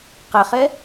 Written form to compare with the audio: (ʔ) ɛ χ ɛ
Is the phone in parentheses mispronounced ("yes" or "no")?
yes